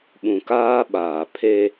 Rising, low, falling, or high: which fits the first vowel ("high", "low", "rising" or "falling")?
low